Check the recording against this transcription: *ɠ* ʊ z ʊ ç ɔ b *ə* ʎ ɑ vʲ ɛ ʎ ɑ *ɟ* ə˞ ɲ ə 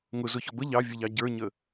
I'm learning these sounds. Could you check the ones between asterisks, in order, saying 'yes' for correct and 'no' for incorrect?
no, yes, yes

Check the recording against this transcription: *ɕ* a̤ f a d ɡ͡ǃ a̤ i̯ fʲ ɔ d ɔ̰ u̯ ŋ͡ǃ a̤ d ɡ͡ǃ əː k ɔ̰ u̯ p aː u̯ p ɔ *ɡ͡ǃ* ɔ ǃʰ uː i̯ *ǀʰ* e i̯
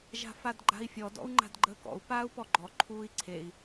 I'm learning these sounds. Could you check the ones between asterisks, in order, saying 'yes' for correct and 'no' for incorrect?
no, yes, yes

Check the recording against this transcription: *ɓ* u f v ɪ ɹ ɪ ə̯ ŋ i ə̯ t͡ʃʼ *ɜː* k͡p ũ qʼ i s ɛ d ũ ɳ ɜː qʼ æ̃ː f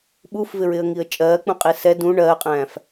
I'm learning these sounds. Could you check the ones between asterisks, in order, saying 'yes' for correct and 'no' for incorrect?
yes, yes

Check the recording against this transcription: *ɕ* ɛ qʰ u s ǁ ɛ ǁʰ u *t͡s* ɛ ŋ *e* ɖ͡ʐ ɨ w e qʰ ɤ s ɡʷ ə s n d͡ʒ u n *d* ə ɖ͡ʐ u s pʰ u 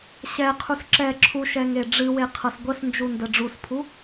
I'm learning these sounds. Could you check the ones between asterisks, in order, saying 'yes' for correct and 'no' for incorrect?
yes, no, yes, yes

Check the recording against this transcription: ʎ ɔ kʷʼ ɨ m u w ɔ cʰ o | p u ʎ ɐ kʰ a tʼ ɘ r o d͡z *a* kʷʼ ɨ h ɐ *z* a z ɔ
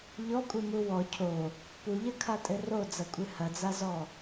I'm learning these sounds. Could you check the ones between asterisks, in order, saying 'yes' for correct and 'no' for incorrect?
no, no

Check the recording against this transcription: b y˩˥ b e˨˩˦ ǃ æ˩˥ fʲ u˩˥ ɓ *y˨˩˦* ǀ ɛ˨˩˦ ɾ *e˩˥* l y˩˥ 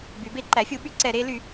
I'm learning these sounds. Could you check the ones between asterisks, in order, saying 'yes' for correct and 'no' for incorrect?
yes, yes

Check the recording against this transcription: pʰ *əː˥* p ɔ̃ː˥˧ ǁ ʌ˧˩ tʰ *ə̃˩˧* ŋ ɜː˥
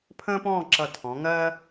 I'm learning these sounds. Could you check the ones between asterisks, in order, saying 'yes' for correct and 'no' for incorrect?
no, no

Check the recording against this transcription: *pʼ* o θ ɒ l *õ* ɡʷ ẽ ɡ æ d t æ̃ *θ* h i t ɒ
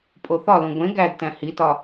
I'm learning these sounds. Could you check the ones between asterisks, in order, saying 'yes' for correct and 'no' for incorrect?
yes, yes, no

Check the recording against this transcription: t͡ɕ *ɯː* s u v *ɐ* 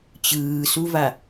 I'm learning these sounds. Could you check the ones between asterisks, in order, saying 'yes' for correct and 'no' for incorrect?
yes, no

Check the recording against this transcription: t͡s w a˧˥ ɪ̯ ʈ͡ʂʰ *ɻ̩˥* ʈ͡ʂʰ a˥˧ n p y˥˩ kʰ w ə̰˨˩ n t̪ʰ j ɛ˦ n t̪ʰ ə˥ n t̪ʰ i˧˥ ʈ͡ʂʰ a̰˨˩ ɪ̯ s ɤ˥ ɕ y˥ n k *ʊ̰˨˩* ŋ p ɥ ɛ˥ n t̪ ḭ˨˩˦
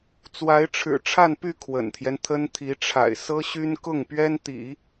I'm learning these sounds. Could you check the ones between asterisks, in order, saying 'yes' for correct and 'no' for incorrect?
no, no

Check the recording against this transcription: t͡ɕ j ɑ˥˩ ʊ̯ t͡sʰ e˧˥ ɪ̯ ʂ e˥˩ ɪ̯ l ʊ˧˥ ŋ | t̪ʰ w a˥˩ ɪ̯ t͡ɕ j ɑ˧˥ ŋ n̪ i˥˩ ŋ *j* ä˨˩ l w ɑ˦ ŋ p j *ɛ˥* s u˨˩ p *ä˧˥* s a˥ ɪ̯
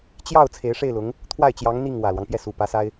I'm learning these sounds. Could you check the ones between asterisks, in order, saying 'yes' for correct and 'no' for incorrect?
no, no, yes

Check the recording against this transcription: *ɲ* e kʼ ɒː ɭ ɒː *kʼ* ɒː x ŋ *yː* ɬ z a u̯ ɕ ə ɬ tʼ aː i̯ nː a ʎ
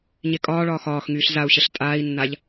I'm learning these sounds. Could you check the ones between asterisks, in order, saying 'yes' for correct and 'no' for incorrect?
yes, no, yes

